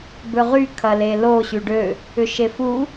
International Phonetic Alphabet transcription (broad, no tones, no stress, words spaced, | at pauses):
bøʁy kʰɐlelo ɕyɖø | ʏʃefu